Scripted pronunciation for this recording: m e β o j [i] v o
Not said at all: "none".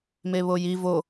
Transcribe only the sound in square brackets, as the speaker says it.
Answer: i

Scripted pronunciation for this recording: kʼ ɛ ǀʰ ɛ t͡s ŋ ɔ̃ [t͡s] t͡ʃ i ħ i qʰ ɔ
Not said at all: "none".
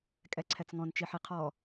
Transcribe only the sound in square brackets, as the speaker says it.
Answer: n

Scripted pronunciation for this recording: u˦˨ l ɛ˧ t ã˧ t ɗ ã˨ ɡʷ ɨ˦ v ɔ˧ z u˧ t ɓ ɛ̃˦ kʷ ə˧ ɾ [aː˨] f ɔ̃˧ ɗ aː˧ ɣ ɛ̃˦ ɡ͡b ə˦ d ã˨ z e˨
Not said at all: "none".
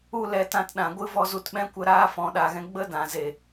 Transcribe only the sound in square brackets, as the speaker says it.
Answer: aː˦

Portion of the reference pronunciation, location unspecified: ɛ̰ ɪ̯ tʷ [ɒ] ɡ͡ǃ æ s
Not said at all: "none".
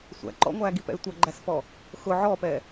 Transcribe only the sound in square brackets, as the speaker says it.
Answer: ʌ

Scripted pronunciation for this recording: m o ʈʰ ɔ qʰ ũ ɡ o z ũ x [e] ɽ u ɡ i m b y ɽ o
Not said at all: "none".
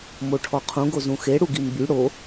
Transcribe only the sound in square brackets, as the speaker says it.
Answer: e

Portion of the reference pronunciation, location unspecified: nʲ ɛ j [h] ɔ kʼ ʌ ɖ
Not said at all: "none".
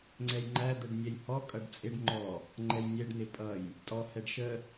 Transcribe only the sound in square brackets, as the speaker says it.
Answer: h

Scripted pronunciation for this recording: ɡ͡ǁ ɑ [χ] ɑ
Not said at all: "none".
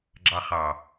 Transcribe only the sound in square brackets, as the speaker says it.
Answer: χ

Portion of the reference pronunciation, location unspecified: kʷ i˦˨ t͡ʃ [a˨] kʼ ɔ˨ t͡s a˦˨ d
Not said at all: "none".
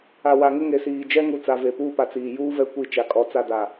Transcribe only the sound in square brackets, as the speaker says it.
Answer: a˨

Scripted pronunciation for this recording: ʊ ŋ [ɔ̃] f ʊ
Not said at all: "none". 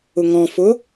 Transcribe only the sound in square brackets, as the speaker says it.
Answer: ɔ̃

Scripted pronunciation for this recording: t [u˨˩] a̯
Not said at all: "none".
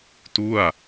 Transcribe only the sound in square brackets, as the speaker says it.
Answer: u˥˩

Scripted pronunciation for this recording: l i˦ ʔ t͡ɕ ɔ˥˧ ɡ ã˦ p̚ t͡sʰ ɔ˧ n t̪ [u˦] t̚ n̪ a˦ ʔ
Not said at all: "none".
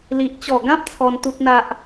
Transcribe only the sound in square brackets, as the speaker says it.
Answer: u˦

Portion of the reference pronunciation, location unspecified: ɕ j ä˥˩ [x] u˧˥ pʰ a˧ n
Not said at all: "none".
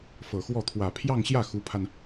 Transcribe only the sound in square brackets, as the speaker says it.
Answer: x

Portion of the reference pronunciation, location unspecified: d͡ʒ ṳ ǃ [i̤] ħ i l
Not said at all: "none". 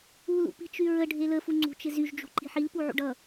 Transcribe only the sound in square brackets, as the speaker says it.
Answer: i̤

